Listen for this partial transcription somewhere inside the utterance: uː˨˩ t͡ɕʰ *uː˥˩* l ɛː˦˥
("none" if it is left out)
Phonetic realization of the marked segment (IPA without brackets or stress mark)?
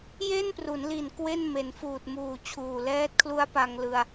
uː˨˩